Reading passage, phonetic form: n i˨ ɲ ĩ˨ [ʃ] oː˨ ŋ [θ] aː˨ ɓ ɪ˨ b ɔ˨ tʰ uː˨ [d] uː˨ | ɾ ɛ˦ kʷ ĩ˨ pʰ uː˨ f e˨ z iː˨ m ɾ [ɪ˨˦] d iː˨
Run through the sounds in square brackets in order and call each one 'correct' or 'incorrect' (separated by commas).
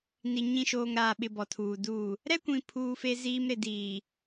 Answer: correct, incorrect, correct, incorrect